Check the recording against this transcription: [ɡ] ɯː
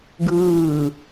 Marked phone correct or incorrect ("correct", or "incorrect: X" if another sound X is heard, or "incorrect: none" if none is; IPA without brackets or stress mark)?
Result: correct